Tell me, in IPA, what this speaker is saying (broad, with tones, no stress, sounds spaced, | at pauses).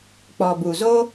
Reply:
k͡p ɔ˨ b u˨ z o˦